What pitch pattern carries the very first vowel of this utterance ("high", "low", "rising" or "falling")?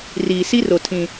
low